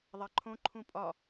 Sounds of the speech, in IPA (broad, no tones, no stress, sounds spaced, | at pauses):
ðˤ æ ǃʰ õ ǃʰ ũ pʼ ɒ